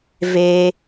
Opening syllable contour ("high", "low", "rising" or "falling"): high